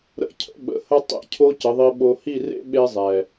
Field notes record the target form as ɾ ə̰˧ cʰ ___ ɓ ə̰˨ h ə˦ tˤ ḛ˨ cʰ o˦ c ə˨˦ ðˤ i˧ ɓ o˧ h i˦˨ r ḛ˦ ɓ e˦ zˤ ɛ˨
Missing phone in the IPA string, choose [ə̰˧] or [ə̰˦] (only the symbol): ə̰˧